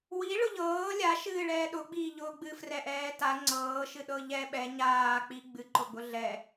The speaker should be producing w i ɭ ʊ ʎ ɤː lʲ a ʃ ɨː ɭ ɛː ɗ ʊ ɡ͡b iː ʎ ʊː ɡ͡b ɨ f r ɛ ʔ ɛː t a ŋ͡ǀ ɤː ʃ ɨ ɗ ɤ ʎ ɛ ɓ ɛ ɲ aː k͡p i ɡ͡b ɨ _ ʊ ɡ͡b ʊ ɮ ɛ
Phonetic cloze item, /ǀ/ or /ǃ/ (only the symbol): ǃ